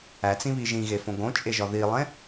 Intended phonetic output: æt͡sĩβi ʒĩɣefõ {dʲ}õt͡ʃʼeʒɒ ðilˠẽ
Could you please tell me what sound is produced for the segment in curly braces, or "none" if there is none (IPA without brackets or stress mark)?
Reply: ɡ